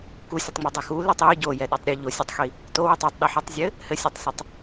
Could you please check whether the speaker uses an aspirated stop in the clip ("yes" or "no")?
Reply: no